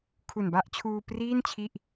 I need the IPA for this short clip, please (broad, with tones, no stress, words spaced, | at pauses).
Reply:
kʰu˨˩nba˦˥ʔt͡ɕʰuː˧priː˥˩n t͡ɕʰi˥˩ʔ